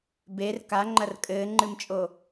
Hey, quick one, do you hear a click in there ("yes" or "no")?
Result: yes